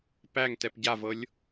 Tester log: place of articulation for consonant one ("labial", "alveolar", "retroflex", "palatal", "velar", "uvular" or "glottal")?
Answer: labial